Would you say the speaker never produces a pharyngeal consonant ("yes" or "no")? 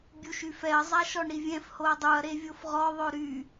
yes